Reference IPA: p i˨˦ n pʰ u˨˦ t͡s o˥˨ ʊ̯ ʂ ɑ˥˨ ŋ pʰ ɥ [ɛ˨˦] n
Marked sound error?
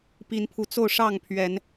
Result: no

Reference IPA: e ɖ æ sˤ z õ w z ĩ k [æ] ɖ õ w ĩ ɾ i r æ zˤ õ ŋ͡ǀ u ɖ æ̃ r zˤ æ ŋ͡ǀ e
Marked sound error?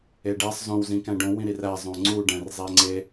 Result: yes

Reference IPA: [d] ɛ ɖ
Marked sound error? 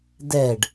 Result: no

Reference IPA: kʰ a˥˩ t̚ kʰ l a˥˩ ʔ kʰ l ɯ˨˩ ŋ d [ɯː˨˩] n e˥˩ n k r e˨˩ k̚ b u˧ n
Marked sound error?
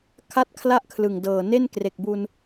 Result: yes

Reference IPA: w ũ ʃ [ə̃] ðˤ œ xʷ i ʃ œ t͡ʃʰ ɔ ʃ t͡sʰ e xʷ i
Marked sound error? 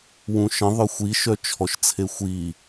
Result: no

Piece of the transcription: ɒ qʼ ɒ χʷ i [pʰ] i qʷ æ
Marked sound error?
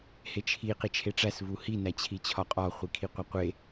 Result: yes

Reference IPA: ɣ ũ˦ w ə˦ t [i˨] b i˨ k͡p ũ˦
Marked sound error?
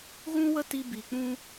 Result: yes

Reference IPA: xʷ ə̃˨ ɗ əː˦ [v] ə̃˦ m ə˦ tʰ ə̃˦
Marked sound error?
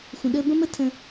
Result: yes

